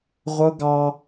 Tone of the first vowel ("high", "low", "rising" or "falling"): high